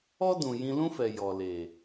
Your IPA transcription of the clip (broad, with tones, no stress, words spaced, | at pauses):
ɔ˦dũ˨ jĩ˧lũ˦fɛ˨ jɔ˨le˨